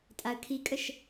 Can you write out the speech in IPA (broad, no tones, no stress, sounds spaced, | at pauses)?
tʼ a ə̯ kʰ i kʼ ə ʃ